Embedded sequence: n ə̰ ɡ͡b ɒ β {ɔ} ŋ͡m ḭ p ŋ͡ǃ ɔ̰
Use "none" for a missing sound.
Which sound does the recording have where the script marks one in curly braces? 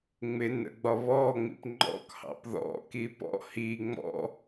ɔ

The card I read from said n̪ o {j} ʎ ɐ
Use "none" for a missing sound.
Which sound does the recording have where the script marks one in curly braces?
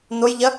j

